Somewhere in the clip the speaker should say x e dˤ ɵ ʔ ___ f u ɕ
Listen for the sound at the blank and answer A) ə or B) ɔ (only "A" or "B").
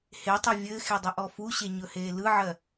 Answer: B